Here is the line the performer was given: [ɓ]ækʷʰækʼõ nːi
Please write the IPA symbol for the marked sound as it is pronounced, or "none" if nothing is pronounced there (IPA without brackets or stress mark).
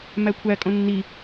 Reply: m